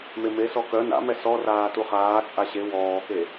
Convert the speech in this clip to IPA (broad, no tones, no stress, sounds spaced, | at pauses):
m e m e s ɔ k œ n a̰ m ɛ s ɔ r aː t u χ aː t͡sʼ a ɕ e w ɔː k e